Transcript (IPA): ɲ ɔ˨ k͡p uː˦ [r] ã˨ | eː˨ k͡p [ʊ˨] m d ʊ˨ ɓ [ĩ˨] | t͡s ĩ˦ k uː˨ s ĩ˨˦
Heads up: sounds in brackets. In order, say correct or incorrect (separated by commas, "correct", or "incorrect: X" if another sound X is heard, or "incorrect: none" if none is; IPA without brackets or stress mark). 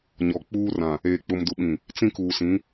correct, correct, correct